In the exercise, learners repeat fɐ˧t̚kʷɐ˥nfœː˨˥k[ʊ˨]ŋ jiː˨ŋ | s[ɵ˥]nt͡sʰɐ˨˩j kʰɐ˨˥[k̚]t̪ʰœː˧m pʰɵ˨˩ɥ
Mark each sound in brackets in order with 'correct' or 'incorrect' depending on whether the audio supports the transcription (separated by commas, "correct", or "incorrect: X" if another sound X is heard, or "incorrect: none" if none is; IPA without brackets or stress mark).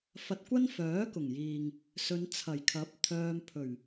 incorrect: ʊ˨˩, incorrect: ɵ˨˧, incorrect: p̚